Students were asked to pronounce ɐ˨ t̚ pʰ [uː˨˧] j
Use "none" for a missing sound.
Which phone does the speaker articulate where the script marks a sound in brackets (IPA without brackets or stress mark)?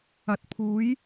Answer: uː˨˧